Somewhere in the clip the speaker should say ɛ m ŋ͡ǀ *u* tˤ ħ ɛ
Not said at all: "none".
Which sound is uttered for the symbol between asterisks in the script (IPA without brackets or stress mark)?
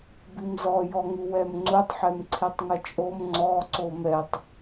u